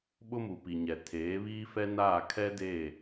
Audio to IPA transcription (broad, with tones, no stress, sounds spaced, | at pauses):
ɓ ʊ˦ m u˨ p i˨ ɲ ɛ˨ tʰ eː˨˦ β iː˦ f ɛ˦ n aː˦˨ kʰ ɛ˦ d eː˦˨